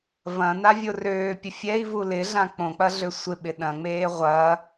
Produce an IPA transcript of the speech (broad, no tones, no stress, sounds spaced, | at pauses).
v ɐ̃ n a vʲ o r øː pʲ ə fʲ ɛ i̯ v u l ɪ ɮ ã k͡p õ k͡p ɐ ɮ ø sʷ ɪ ɓ ɪ ɗ ɐ̃ ŋ͡m eː ʁʷ ɐː